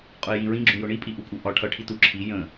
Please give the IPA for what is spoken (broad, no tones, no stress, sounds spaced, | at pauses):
qʼ ʊ ɪ̯ j ĩ ɹ ĩ ɡ͡ǁ ũ j ʊ ɳ i pʼ i ʔ u pʼ u ʔ ɒ ʈʰ ʌ ʈʰ i t u ǁʰ i j ə̃